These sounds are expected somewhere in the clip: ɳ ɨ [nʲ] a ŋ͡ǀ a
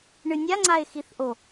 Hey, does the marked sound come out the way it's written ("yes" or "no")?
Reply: yes